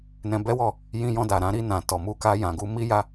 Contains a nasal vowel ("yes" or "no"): yes